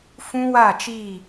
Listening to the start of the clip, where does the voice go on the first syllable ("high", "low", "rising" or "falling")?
high